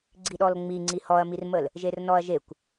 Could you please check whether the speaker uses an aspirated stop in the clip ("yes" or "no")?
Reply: no